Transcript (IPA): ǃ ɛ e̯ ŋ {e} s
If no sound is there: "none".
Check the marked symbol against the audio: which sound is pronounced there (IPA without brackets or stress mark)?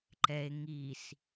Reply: i